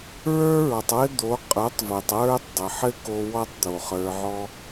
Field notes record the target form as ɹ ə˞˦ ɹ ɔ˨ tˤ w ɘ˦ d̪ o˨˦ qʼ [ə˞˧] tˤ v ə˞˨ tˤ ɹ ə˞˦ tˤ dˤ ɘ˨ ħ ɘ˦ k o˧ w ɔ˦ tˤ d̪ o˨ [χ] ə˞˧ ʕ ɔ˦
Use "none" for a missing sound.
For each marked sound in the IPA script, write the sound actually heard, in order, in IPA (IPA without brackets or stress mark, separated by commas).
ə˞˨˦, χ